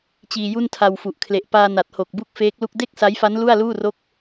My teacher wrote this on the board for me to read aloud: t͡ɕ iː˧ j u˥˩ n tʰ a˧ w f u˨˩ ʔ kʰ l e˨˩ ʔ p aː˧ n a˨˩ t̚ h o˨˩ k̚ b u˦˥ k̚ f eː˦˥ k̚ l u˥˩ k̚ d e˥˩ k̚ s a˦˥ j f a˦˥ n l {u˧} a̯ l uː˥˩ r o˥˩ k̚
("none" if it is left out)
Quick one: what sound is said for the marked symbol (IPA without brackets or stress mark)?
u˥˩